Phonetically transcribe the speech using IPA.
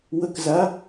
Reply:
w ə k z a

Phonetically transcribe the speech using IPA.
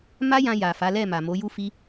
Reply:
m a˦ j ã˧ j a˨ f a˨˦ l ɛ˦˨ m a˨ m o˨˦ j u˦ f i˦

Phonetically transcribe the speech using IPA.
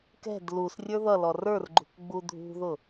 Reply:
k ɛ̤ d l u s rʲ ə˞ ð ʌ l ɔ r ə˞ r ɡ͡ǃ ṳ k ɡ͡b u dʱ ṳ ð ʊ

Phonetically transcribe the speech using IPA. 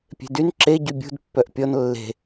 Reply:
pʲ e̤ d y n ǁ e ɟ y bʲ ṳ d pː œ ʔ pʲ ɔ n lː e̤

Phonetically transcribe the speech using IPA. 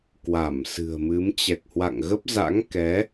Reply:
k w a˧˩ m s ɨ̤˨˩ ə̯ m ɨ˨˦ m t͡ɕ ɛ˨˩ k̚ h w a̰˧˨ ŋ ɣ ə˦˥ p̚ z a̰˧˥ ŋ k ɛ˨˦

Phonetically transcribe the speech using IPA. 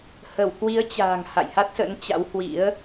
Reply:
h ə˧˩ w k w i˨˦ ə̯ t͡ɕ a̤ː˨˩ ŋ h a̰˧˨ j h a˦˥ t̚ s ə̰˧˥ n t͡ɕ a̰˧˥ w h w ḭ˧˥ ə̯

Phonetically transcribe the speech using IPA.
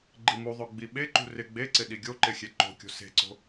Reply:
ɡ͡ǃ i m u ðˤ o ɡ͡b i ɓ e ǃ ṳ r ɪ ɡ͡b e ǀ ɪ ɗ i ɡʲ o ǃ ɪ xʲ e ǃ o̤ kʲ o̤ s e̤ ǀ o̤

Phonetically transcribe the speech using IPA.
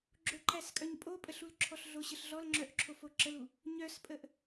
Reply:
ɡ͡ǁ o ǃ æ s kʼ œ ɲ pʼ o pʼ ə ɬ u l ǁʰ ɔ ɬ ɮ o ɕ ə ɬ ɮ ɔ l ŋ͡ǁ œ ʔ ǁʰ o f o ǁ ə l u | ɲ œ s pʼ ə ʔ

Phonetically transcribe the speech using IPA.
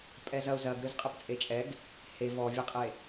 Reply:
pʼ ɛ z ɐ ʊ̯ z ɐ ɡ ɾ ɯ z qʼ ɘ p t͡sʼ e t͡ʃʼ ɛ ɡ | h e v ɔ vʲ ɛ qʼ e

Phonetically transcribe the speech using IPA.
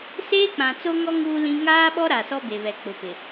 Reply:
s eː˦ k͡p ã˨ t͡s o˦ ŋ ɔ˦ ŋ uː˦ l ĩ˦ ŋ aː˦ ɓ ɔ˦ ɾ a˨ s ɔ˦ b e˨ β ɛ˨ k͡p ʊ˨ p ɪ˨

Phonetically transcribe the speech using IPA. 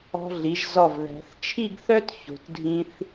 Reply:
ɔ̤˧ ɮ i˩˧ ʒ z ɔ˧˩ v ð æ̤˩˧ θ t͡ʃʰ i˥˧ ɡ θ œ˥ t ç o̤˩˧ t dʱ ĩ˧ θ

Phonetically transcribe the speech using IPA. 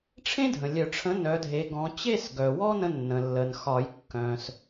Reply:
ʈ͡ʂʰ ẽ˥ dʱ ə̃˩ lʲ œ˨˩˦ ʈ͡ʂʰ ə̃˨˥ n œ˨˥ dʱ e˨˥ ɡ ɔ̃˨˥ t͡ɕ e˥˧ s ɡ œ˩ w ɔ˥ n ə̃˧ nː ə̃˩ lː ə˩ n x ɒ˨˩˦ j kː œ̃˩ s

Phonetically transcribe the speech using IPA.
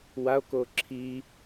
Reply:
w a o̯ k o ǁʰ i

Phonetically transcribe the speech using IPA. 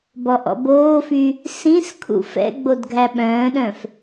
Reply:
b ɔ ʔ ɔ̰ b oː f y | s ĩ s kʰ ṵ f ɛ̰ ɡ͡b o d ɡʱ æ ɓ œ̃ː ɗ œ̃ f

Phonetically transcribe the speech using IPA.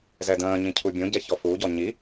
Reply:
z ɛ d ə̃ː ɲ ĩ cʰ u bʲ õ ɟ ɛ ç ɔ f u ɟ ɔ ɲ i

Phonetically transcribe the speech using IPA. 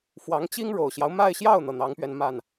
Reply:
f w ɑ˧˥ ŋ t͡ɕ i˥ ŋ ɻ o˨˩ ʊ̯ ɕ j ɑ˦ ʊ̯ m a˥˧ ɪ̯ ɕ j ɑ˥˩ ʊ̯ n̪ ɤ˩ n̪ ɑ˧˥ ŋ p ɥ ɛ˧ n m a˥˩ n

